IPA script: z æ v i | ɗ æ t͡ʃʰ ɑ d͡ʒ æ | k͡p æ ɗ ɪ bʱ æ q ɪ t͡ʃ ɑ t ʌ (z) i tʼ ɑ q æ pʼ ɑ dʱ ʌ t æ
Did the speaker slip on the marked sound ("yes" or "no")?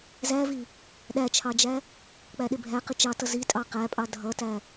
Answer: no